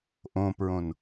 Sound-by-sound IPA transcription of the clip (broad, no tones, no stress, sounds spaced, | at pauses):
ʔ õ p ɹ õ n